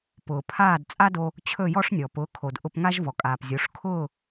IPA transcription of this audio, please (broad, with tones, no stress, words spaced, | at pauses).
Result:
pʊː˩pʰaː˥˩d t͡sʼa˥do˧ | t͡ɕʰɵ˥˩jɔ˥ʂ nʲɔ˩pʊː˩˥ kʰo˩dʔʊ˧pŋa˥ʒ vɔ˩kʼaː˩pzʲo˩˥ʂ kʰʊː˥˩